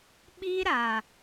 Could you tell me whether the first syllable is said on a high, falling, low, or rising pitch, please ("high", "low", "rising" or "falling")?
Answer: high